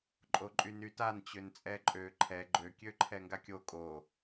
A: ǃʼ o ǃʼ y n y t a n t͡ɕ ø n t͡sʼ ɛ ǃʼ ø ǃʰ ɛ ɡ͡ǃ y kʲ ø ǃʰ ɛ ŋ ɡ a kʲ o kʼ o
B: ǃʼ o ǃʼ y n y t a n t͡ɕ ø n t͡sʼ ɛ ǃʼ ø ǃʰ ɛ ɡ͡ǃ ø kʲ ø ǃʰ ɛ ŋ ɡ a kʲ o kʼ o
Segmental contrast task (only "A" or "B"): B